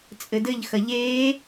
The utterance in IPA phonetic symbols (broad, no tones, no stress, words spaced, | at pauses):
t͡sʼɘdɘʎ xɐʎeː